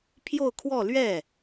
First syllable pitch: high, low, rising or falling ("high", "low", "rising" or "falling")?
falling